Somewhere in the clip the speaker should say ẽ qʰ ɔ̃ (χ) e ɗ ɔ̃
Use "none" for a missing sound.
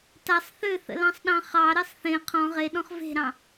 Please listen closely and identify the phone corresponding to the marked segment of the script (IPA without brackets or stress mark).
ʁ